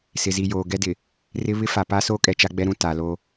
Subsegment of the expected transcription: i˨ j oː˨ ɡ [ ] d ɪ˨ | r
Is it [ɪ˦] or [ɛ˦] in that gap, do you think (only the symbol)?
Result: ɛ˦